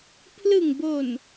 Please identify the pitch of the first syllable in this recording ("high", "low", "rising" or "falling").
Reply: low